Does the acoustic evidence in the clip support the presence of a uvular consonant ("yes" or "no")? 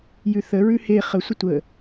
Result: yes